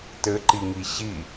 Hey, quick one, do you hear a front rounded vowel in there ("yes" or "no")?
no